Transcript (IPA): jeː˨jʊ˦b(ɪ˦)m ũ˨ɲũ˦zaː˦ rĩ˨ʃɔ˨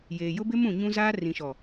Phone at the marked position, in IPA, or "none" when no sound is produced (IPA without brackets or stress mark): ɪ˦